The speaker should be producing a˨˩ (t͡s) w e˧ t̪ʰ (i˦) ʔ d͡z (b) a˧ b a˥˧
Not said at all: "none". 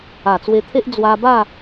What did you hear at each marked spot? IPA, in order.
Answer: t͡s, e˦, w

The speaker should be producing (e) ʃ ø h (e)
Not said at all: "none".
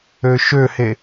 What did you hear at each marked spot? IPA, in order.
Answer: ø, e

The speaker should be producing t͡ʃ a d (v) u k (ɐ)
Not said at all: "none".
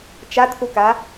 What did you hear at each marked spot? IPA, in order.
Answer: θ, a

